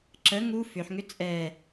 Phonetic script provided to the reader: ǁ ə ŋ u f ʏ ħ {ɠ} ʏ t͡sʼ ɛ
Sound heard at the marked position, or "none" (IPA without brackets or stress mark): ŋ